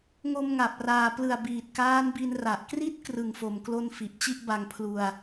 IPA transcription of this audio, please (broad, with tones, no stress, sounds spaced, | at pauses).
ŋ o˧ m ŋ a˨˩ p̚ r aː˩˦ p l ɯ˨˩ a̯ b iː˨˩ t̚ k aː˦˥ n b i˧ n r a˨˩ ʔ k r i˥˩ t̚ k r ɯ˨˩ ŋ f o˨˩ m k l o˧ n f i˨˩ ʔ t͡ɕ i˥˩ ʔ b a˧ ŋ pʰ l u˧ a̯